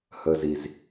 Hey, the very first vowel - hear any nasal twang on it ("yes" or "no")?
no